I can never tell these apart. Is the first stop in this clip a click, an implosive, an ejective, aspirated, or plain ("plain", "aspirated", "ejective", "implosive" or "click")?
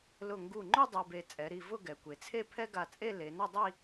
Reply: plain